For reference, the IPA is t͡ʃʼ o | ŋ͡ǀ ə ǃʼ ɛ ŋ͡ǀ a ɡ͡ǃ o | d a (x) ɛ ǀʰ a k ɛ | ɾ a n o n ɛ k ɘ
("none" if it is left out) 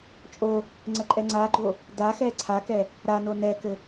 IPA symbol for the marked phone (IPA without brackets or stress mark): x